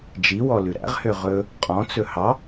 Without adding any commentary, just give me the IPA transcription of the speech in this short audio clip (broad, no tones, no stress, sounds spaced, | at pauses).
d͡ʒ i w ɔ l ʉ ɾ æ̰ ʁ h ø ʁ ɵ | qʼ ɔ̃ t͡s ɵ h ɑ